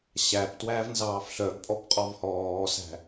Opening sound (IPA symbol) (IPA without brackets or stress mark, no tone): ɕ